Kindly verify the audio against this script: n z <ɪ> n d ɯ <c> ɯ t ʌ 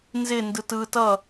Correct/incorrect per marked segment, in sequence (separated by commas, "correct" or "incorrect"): correct, incorrect